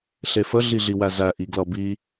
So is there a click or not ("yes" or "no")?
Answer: no